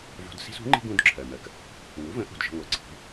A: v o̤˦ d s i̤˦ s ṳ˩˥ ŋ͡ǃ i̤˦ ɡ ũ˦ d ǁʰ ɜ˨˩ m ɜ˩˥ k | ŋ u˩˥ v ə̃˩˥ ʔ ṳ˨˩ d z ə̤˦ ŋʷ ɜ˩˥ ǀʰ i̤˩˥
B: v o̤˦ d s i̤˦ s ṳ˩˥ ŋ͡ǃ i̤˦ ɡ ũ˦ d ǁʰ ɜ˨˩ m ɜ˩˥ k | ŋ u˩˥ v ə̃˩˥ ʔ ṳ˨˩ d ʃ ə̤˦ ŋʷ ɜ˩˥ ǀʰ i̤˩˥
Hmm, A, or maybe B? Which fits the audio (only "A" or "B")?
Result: B